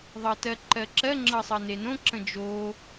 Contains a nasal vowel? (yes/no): yes